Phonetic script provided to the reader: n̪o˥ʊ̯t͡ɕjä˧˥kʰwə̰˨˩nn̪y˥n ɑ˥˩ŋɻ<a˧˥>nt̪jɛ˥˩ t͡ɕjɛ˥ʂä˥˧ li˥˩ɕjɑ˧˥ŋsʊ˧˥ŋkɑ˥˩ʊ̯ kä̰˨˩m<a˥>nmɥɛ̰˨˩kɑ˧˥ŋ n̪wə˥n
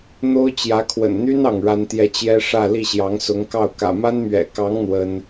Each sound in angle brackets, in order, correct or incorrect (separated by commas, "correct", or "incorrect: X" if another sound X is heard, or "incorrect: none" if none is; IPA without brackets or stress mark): incorrect: a˥, correct